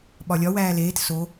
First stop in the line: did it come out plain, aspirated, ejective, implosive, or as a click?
implosive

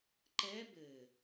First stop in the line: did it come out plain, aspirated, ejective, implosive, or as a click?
click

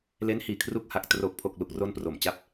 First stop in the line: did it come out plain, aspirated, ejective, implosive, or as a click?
aspirated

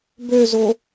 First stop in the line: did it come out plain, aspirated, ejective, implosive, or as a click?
plain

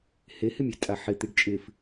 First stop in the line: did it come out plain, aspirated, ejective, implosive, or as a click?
ejective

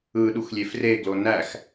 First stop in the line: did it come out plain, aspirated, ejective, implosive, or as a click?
implosive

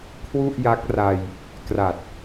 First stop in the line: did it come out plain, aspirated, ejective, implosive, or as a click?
aspirated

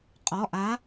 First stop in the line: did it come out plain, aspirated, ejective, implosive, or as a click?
ejective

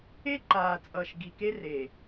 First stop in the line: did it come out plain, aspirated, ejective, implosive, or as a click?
click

